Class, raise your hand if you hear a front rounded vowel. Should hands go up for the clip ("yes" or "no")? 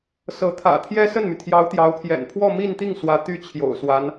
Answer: yes